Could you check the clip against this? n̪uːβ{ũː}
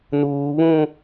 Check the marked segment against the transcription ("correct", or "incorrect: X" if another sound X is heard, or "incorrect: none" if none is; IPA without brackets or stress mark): correct